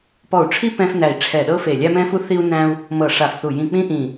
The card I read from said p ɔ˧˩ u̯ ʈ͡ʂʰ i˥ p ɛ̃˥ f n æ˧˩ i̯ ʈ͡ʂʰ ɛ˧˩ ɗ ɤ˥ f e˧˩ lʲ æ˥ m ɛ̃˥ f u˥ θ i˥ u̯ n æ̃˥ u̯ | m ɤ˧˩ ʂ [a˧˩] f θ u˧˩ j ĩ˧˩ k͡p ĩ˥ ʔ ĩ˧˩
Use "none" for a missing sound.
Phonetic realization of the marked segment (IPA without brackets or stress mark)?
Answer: a˧˩